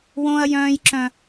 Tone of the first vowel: high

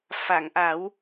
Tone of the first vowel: low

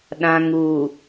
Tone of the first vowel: low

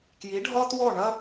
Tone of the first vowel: rising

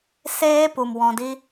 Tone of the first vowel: high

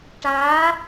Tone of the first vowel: rising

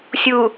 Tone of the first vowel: low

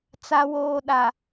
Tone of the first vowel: low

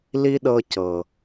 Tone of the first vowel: high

